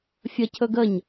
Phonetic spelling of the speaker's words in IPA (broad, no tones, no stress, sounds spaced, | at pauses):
fʲ ə cʰ ɵ ɡ ə ɲ